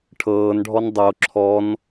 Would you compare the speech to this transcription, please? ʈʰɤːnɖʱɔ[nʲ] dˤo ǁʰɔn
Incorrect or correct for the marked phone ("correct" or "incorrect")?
incorrect